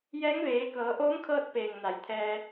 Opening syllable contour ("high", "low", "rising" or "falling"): rising